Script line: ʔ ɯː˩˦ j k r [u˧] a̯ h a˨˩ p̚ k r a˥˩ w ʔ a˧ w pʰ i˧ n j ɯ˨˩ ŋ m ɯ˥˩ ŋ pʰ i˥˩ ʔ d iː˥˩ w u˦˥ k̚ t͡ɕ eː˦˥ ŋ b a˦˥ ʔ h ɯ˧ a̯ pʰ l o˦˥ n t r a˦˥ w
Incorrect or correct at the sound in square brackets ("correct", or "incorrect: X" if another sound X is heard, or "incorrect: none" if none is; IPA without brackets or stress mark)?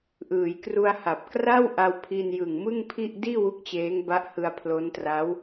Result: correct